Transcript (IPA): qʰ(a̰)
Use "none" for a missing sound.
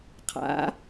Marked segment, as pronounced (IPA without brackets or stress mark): a̰